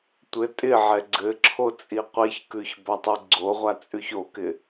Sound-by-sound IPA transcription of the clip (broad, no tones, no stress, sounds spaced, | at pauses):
tʷ ɘ tʼ ɪ ʕ ɛ ɡ͡ǀ ɘ ǁʰ o t͡sʼ i qʷ i ç k ʉ ç b a tˤ ʉ ɡ͡ǀ o ʁʷ a t͡sʼ ʉ ç o k ɪ